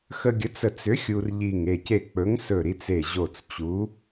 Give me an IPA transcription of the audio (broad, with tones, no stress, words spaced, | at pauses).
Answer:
xə˧ɡʲə˨˥t͡s ə˧˩t͡sʏ˨˥ xʲu˧rʎi˧˩ŋ e˧˩ce˧˩ k͡pɵ˨˥ŋsɵ˧˩ɾi˧t͡s e˧˩ʑo˧˩t͡st͡ɕu˨˥